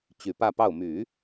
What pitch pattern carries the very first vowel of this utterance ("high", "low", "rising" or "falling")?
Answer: low